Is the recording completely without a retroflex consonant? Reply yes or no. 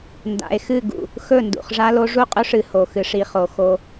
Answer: no